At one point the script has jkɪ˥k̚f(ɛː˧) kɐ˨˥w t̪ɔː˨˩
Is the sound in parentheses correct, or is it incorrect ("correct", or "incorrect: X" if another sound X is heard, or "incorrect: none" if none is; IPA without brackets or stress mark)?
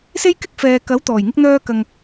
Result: incorrect: ɛː˨